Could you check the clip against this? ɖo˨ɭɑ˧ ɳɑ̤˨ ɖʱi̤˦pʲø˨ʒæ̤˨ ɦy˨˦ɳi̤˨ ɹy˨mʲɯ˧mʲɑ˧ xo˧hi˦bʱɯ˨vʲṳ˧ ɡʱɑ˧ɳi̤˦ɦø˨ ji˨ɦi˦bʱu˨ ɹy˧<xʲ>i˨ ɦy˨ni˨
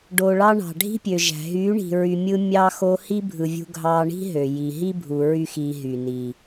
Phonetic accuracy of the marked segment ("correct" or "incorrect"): incorrect